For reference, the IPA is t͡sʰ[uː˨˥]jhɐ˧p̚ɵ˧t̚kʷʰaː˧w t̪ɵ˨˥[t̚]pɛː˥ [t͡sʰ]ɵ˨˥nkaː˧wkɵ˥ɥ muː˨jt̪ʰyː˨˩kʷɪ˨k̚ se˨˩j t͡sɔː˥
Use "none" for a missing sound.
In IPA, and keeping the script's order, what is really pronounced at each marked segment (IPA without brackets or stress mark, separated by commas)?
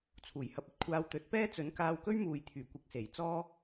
uː˨˩, t̚, t͡s